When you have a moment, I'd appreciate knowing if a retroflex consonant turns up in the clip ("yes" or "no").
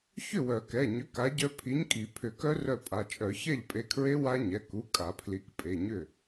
no